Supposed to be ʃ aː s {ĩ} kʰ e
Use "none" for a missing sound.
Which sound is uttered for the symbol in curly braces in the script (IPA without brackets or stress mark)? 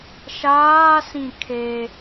ĩ